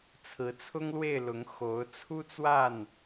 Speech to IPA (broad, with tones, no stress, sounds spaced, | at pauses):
t͡sʰ ɹ̩˨˦ t͡sʰ ʊ˦ ŋ l w e˥˨ ɪ̯ l ʊ˨˦ ŋ x o˨˦ ʊ̯ t͡sʰ u˦ t͡s w a˥˨ n